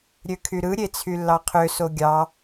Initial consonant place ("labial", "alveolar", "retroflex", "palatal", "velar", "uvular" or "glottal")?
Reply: alveolar